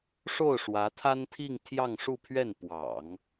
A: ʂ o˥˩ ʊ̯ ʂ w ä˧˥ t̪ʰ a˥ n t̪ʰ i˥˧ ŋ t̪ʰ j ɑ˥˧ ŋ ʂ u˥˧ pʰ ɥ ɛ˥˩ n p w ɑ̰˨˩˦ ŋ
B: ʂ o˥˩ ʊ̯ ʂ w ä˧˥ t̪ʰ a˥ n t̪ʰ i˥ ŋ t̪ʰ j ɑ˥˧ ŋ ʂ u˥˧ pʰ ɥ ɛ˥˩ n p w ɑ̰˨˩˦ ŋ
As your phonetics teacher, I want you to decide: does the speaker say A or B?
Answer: A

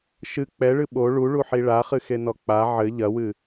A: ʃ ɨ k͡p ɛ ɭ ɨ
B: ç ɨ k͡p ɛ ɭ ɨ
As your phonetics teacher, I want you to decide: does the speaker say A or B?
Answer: A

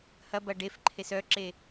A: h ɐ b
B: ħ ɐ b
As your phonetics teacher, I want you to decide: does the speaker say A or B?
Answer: A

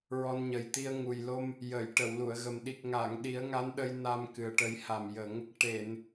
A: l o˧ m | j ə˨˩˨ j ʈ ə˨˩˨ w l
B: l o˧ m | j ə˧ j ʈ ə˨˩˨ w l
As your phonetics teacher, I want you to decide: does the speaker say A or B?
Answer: A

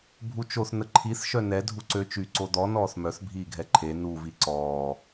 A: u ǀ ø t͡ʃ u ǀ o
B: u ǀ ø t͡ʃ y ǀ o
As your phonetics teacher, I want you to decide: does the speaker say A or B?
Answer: B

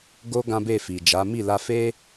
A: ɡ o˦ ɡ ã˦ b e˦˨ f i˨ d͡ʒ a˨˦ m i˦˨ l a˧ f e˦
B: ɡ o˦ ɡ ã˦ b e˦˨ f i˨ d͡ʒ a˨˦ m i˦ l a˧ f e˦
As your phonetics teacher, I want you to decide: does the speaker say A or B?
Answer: A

